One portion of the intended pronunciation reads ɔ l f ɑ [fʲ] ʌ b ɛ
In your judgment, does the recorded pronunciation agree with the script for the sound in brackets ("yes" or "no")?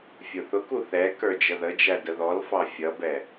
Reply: yes